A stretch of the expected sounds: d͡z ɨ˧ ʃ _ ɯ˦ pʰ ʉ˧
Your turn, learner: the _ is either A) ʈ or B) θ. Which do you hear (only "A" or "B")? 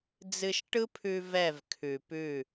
A